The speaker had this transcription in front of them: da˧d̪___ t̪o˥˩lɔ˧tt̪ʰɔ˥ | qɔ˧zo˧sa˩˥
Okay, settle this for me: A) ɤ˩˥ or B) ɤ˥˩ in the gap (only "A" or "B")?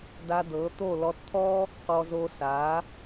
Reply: A